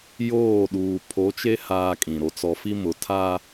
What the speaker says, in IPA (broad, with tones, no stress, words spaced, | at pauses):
joː˦˨ɗuː˨ pʰo˨˦t͡ʃe˦ haː˦kʼĩ˨ ɾo˨t͡sɔ˨fi˦ mʊ˨tʰa˦